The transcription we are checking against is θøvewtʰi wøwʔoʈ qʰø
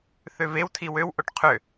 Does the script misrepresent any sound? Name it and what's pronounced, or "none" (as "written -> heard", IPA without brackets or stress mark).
none